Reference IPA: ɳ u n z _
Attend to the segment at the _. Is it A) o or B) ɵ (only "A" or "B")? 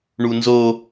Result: A